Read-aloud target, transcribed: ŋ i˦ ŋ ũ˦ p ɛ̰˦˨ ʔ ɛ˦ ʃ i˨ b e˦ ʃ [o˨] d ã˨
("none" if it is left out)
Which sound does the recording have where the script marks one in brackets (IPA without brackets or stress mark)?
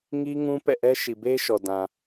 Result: ɔ˨